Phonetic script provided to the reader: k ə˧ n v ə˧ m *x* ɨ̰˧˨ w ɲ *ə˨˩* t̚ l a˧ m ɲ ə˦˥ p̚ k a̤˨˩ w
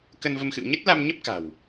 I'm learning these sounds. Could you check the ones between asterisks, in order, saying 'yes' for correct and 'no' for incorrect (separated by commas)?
yes, no